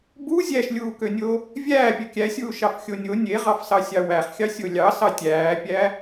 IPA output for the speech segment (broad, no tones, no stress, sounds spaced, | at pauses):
b u zʲ æ ʃ lʲ uː k ø nʲ o | vʲ æː pʲ ø kʲ æ sʲ uː ʃ ɑ f xʲ o nʲ o nʲ e ʁ ɑ f s ɑ sʲ ɑ w æ χ xʲ ɑ sʲ o lʲ ɑ s ɑ tʲ æː pʲ æ